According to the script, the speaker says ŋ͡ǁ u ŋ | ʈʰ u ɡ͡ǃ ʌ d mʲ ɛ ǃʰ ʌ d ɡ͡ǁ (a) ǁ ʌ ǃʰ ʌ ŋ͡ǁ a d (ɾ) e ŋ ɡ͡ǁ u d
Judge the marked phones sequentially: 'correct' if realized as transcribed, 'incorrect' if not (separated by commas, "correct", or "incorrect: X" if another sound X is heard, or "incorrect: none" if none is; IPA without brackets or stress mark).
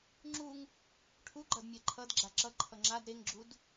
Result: correct, correct